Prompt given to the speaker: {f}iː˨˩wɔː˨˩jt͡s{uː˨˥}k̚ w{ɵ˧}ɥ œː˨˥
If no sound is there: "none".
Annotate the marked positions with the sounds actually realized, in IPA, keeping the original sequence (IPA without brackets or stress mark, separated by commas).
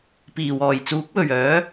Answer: p, uː˨˥, ɵ˨˩